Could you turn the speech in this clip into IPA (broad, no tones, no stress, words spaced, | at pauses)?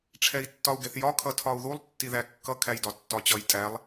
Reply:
ʈ͡ʂʰɛi̯tːɒu̯ɡɛθjɒ kʰʌtʰɒu̯ðulˠ tːiðækːʌ kʰæjdɒtːɒt͡ɕʌj tʼælˠ